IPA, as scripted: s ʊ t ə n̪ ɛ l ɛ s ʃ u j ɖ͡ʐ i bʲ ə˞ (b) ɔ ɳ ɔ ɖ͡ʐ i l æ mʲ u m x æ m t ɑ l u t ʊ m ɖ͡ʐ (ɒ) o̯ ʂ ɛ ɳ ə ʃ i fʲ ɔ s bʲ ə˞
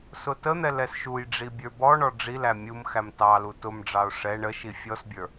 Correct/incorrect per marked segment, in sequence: correct, incorrect

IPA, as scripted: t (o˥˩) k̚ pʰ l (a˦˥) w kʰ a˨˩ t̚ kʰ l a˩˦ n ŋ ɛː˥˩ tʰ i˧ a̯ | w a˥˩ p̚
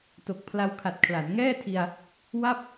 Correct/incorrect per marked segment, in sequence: incorrect, incorrect

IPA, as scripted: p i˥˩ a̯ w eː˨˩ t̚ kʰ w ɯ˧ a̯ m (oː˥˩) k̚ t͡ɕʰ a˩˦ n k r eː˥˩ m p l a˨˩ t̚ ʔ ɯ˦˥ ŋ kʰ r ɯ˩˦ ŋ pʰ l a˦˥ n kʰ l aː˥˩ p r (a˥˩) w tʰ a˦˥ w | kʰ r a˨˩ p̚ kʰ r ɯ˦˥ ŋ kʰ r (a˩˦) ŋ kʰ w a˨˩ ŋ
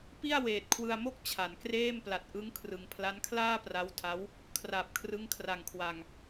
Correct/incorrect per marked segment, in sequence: incorrect, incorrect, incorrect

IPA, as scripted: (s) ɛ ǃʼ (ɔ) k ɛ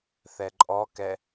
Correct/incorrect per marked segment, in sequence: incorrect, correct

